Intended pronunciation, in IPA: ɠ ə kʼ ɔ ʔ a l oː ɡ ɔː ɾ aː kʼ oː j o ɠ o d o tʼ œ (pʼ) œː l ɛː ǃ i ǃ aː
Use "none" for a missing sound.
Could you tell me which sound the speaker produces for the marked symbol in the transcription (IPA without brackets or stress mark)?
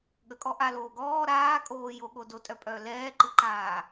pʼ